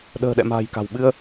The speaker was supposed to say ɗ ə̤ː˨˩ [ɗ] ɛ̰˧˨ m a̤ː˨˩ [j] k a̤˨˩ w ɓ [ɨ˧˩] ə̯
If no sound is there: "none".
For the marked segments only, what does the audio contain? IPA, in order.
ɗ, j, ɨ˧

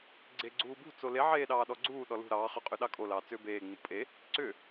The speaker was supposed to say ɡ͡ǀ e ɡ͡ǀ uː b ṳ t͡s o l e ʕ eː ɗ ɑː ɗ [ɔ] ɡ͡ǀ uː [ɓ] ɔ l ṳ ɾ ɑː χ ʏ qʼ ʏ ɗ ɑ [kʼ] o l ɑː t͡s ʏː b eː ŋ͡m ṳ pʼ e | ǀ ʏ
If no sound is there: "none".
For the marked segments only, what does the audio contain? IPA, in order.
ɔ, ɗ, kʼ

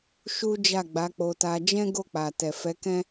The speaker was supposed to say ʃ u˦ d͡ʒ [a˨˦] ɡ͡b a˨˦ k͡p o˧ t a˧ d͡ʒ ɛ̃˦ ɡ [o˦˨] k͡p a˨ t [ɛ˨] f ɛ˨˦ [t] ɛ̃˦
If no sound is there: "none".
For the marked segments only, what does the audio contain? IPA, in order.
a˦˨, o˦˨, ɛ˨, k

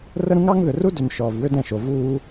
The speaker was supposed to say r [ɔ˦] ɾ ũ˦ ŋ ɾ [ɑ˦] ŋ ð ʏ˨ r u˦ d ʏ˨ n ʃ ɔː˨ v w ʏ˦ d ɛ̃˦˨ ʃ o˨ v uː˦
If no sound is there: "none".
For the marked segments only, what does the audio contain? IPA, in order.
ə˦, ɑ˦

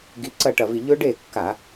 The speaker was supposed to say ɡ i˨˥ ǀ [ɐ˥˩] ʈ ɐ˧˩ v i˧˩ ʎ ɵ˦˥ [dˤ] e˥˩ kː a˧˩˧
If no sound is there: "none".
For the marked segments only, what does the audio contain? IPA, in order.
ɐ˥˩, ɖ

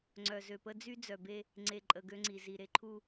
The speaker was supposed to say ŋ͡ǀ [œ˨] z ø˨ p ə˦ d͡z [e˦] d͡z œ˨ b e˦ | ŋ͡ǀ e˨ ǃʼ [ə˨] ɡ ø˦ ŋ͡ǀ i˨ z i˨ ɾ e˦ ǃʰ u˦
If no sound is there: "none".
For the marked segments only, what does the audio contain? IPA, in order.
œ˨, y˦, ə˨

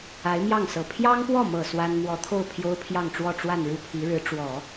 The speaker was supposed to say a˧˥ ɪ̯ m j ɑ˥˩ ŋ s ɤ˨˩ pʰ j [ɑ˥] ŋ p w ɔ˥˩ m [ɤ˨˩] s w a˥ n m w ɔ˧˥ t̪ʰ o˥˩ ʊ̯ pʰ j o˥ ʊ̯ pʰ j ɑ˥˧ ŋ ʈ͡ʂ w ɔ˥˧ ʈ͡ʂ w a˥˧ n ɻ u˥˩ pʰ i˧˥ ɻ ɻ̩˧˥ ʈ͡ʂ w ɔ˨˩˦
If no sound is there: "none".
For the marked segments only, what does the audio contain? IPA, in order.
ɑ˥, ɤ˨˩

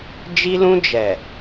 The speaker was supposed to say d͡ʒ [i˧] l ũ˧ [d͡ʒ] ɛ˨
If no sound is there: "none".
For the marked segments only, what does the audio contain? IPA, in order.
i˧, d͡ʒ

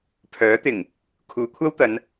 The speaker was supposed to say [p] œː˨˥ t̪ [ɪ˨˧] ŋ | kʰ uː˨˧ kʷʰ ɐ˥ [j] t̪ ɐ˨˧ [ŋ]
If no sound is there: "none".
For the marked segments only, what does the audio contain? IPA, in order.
pʰ, ɪ˨˩, w, n

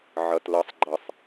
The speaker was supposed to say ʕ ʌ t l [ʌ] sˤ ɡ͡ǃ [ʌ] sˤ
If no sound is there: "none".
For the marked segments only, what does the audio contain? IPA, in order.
ʌ, ʌ

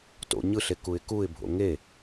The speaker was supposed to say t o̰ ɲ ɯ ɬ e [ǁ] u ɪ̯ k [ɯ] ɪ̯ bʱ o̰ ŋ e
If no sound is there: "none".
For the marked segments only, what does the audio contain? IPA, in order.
k, u

